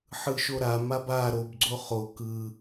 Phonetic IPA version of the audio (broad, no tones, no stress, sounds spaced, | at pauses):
ħ ɯ ʃ o ɾ a m a b a ɾ o b ɡ͡ǀ o χ o k ɯ